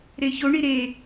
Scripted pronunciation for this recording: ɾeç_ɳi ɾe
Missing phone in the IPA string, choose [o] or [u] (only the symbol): o